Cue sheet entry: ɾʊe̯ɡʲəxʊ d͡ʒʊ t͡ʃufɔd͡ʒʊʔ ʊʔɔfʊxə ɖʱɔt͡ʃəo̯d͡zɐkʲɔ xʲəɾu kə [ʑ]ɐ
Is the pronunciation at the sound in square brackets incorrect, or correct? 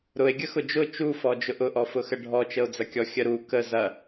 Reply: incorrect